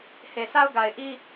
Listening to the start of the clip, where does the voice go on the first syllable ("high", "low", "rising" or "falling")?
low